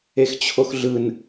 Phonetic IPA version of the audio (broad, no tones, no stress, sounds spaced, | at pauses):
e x t͡ɕʰ o x ɮ ɯ n